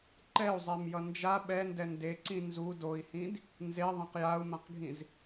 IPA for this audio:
ǃɛu̯zˤɛmjʌ nd͡ʒa ɓɛndɛ ndeǀĩ nzu doi̯hĩd | nzeðˤẽq jau̯mãqɡʱĩz

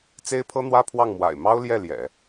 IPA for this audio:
t͡se˥ɪ̯pʰɤ˥n̪wä˥pʰwɑ˥˩ŋ mwa̰˨˩ɪ̯mɑ˥ʊ̯ljɛ˥˩ ljɛ̰˨˩˦

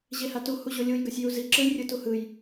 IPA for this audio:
ʑehatu huʑolʲuj ɡʌsʲjuzi ǁɯjrʲɯtuhɯj

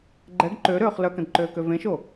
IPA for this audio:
ɡ͡ǃɛɡ ǃøɾøːχ lœkə̃dǃøːkø vẽʃo

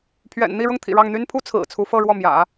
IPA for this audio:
pʰɥɛ̰˨˩n n̪i˥˧ ɻʊ˥˩ŋt̪ʰḭ˨˩ɻɑ˥˩ŋ n̪y˥npʰu˥ t͡sʰɹ̩˨˩t͡sʰu˧˥fɤ˥˧ ɻwɔ˥˩mjä̰˨˩˦

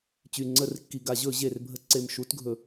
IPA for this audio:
t͡ɕy˨˩ŋ͡ǀə˧˩˧rkːi˨˩ ɡa˧˩˧ʑɵ˧˩˧ ʑe˨˩rbʱə˧˩˧ ǀe˨˩mʃu˧˩˧tɡʱɵ˨˩

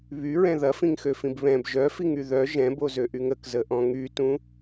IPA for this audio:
βyɹɛ̃ ðɐfĩŋxøfĩb βɛ̃b ʒœfiŋy ðœ ʒɛ̃bozøʔyŋ əkzəʔɔ̃ ŋytũ

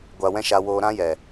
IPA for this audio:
ɡʷa˧wɛ̃˦ ʃa˧woː˧ ɾã˦jɛ˨

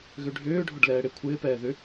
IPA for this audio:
ɣøɖʱʏːɖʱʊɖ lɛːɽekʷʰɪːpɛː ðʏ

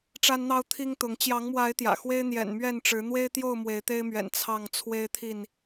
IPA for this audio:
ʈ͡ʂa˦nn̪ɑ˦ʊ̯ t̪ʰi˦ŋt̪ʊ˨˦ŋ t͡ɕjɑ˨˦ŋmwa˨˦ɪ̯ t̪jä̰˨˩xwe˦ɪ̯ n̪jɛ̰˨˩n mɥɛ˥˨nʈ͡ʂɻ̩˨˦ n̪we˦ɪ̯t̪jo˥˨ʊ̯ mwe˨˦ɪ̯t̪e˦ɪ̯mɥɛ̰˨˩n t͡sʰɑ˥˨ŋ t͡sʰwe˦ɪ̯t̪ʰi˥˨n

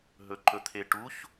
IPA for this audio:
ɦɵǃɵt̪ʰeʈuç

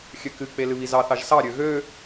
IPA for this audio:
xʲøkɨk͡pe lɨβizɑθɑʒ sɑɾʲø ɣø

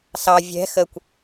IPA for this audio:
sɑ vʲɛ̤ xəkʷ

